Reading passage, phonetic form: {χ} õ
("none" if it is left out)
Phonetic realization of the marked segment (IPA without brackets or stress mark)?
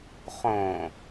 χ